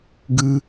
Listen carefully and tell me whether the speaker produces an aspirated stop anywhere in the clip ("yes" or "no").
no